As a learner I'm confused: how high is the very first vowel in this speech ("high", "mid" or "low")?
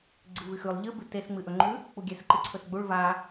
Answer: high